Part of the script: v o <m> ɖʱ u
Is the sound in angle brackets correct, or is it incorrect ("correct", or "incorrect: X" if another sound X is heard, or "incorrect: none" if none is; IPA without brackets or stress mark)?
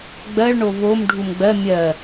correct